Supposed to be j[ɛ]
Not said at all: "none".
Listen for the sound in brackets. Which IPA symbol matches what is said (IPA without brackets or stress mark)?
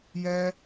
ɛ